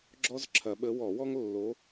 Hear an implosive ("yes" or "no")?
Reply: yes